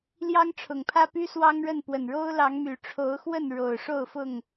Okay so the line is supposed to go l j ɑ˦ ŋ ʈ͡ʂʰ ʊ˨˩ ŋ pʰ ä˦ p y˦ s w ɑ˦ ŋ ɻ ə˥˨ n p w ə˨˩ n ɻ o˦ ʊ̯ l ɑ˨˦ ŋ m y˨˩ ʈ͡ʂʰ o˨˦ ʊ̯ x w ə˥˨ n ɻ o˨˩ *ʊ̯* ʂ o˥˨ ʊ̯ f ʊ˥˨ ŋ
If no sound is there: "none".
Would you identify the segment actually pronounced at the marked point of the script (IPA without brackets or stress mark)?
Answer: ʊ̯